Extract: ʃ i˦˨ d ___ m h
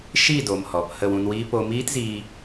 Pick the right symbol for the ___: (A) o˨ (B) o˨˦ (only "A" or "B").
A